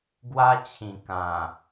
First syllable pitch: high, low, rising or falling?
high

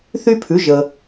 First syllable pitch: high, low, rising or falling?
high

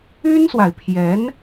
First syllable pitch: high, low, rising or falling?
high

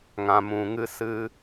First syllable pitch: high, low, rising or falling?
low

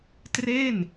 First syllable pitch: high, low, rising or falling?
falling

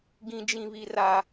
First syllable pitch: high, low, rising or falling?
low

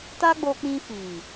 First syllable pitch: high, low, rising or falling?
high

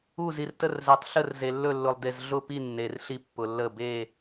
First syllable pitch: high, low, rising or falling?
falling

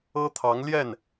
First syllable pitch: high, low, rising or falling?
high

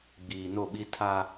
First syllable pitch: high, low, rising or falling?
low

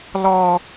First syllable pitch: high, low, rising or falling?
high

